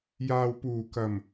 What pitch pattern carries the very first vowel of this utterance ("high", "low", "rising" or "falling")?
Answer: low